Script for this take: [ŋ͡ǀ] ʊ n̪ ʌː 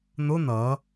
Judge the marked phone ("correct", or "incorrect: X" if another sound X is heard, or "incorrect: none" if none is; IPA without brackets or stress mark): incorrect: n̪